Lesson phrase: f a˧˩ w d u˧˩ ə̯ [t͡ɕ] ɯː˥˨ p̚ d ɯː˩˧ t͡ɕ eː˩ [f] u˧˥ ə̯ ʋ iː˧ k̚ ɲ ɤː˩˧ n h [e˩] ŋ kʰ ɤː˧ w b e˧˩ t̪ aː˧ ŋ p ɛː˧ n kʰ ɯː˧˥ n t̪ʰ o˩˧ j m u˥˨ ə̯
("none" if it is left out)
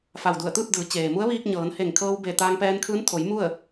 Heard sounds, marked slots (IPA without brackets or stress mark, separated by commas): t̪, m, e˧˩